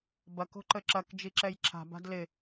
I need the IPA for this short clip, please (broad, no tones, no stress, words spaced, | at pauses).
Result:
bɐk o̤ǃəǁɐk d͡ʒiǁɛjǁʰa̤ ba̤dlɪ